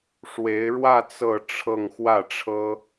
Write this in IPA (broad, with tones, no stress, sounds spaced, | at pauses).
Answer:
ʂ w e˧˥ ɪ̯ ɻ w ä˥˧ t͡s ɤ˥˧ ʈ͡ʂʰ ɤ˥˧ ŋ x w ä˥˩ ʈ͡ʂʰ ɤ˥